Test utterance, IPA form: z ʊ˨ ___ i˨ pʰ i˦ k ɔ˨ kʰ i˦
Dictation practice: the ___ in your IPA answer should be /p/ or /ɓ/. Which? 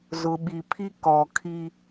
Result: ɓ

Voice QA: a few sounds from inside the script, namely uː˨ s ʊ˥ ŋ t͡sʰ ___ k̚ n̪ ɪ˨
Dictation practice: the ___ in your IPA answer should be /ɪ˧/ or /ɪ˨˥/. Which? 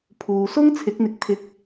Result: ɪ˨˥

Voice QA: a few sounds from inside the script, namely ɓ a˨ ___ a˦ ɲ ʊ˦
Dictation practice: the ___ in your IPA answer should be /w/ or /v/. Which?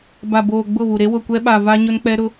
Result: v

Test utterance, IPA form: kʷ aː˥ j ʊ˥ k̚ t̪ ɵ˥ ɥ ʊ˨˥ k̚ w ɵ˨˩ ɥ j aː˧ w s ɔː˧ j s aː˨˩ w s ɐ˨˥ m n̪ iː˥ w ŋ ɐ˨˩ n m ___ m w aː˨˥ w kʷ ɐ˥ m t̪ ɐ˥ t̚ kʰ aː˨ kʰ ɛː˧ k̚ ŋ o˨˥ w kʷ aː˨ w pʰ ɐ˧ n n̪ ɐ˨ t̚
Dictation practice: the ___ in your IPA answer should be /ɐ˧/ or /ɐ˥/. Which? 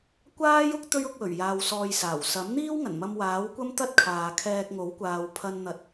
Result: ɐ˧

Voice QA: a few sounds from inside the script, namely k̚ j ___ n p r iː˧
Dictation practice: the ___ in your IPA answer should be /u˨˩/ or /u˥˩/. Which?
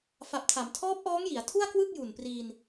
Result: u˨˩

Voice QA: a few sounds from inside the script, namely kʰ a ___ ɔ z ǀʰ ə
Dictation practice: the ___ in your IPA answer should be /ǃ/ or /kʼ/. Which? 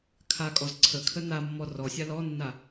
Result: kʼ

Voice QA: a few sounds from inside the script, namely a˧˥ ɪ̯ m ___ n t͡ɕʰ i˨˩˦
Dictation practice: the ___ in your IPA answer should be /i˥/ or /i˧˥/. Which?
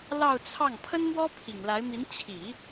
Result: i˧˥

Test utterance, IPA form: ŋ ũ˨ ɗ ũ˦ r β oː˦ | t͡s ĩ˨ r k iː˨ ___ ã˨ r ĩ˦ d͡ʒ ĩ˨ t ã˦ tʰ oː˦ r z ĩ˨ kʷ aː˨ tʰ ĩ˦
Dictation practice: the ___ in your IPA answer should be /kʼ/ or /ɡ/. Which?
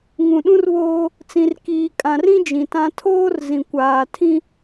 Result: kʼ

